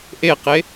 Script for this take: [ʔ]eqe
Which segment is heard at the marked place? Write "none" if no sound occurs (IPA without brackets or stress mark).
ʔ